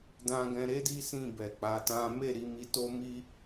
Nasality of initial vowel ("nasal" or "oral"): nasal